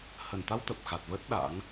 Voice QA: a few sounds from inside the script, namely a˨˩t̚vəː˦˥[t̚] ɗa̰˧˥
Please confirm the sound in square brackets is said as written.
yes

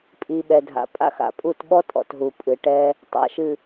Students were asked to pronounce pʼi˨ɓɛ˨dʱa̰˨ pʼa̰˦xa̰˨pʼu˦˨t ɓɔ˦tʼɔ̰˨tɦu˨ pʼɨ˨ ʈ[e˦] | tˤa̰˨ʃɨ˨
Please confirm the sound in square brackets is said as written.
no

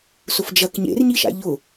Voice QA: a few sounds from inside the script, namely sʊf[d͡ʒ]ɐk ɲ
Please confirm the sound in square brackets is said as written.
yes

